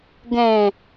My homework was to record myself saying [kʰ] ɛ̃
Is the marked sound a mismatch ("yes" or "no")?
yes